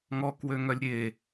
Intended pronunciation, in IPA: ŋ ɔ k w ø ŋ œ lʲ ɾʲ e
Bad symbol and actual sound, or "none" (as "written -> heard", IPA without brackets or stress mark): none